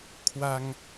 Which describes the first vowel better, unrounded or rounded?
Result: unrounded